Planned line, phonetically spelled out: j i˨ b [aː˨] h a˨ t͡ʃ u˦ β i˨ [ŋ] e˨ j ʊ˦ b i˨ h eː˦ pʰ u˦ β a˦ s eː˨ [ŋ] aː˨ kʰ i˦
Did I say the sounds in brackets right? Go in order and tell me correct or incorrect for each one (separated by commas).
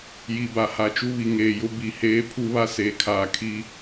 incorrect, correct, incorrect